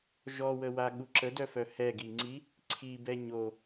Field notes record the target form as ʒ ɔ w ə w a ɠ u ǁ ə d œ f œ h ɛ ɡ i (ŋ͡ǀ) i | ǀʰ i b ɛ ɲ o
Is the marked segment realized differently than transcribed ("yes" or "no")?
no